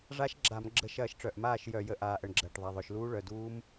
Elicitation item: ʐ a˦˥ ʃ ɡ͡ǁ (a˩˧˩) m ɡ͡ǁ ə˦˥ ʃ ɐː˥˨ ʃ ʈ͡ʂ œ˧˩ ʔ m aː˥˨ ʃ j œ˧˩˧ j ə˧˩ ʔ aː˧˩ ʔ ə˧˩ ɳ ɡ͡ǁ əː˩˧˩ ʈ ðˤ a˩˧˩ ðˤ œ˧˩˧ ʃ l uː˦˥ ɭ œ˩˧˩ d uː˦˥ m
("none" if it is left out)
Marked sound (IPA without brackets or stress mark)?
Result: a˧˩˧